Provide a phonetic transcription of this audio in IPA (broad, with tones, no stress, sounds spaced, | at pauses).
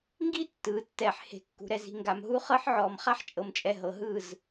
ŋ ɡ i˦ tː ɯː˨ tː ɛː˨ ħ h e̤˨ kː ṳ˨ ɾ ɛ˨ z i̤˨ ŋ ɡ a˨ m ɦ u˦ χ ɤ˦ ħ ʕ ɔː˨ m χ a˦ ħ t͡ʃʼ ɤ˨ m t͡ʃʼ ɛ˨ ɦ ɤ˨ ɦ ɯ˦˨ z